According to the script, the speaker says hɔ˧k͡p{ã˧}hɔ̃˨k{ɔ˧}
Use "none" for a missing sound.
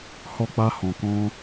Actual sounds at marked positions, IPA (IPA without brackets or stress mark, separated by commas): a˧, ɔ̃˧